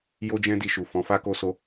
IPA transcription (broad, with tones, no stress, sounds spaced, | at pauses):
j o˦ d͡ʒ ɛ̃˦ d i˧ ʃ u˨ f ɔ̃˨˦ f a˦ k o˦ s o˦